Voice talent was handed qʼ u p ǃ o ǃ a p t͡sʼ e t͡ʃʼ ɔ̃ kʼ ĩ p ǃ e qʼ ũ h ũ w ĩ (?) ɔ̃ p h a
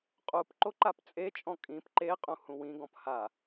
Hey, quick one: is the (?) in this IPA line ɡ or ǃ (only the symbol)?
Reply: ɡ